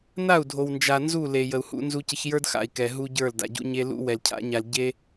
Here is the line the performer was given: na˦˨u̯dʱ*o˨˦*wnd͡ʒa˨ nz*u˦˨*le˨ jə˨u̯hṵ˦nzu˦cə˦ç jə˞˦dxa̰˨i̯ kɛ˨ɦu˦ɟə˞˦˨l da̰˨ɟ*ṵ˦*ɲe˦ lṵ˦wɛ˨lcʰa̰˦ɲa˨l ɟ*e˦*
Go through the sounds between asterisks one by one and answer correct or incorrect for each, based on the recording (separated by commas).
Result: incorrect, correct, correct, correct